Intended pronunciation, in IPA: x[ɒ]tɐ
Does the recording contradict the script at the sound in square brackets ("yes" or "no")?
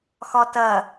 no